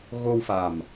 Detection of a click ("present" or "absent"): absent